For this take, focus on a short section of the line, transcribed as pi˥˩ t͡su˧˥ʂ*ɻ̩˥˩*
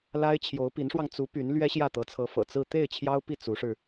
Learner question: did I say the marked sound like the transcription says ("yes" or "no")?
no